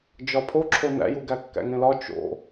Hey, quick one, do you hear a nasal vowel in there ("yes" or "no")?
yes